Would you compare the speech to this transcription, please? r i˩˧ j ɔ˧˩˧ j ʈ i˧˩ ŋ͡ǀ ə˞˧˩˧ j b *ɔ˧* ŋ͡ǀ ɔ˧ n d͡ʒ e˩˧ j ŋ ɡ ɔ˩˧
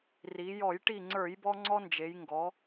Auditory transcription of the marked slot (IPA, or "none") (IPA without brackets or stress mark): ɔ˧